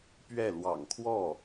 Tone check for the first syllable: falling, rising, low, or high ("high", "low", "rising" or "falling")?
falling